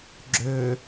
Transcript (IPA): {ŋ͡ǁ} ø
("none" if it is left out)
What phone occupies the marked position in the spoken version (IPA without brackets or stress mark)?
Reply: ɡ͡ǁ